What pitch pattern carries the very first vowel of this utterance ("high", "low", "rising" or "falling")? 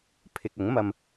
low